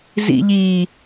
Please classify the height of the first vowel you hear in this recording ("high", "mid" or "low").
high